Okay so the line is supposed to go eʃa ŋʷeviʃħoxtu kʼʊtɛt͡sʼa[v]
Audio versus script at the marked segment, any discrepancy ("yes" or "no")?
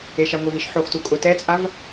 no